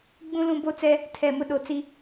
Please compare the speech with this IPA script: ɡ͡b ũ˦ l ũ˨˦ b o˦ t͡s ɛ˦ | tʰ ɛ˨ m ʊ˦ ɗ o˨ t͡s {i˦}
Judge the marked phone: correct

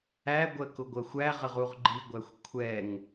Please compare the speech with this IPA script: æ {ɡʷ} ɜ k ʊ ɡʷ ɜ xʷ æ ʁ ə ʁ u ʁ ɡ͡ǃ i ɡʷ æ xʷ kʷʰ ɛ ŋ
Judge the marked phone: correct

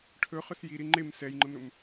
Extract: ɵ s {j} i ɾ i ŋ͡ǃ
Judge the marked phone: correct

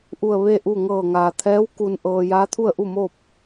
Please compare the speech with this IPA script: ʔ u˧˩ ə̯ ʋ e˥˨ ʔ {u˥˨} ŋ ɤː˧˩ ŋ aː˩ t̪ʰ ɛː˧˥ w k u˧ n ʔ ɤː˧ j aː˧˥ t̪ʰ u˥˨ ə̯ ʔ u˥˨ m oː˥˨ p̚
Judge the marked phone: correct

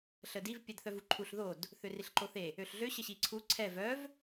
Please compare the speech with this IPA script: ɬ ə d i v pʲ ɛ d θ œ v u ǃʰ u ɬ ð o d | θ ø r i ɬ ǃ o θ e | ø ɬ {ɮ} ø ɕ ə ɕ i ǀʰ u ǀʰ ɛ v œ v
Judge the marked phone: correct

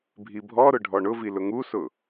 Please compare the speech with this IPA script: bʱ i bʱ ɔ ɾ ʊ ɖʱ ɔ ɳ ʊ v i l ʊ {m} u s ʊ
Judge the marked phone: incorrect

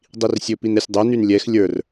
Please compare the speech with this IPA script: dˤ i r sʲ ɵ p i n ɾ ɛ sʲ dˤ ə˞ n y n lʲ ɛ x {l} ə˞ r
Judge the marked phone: incorrect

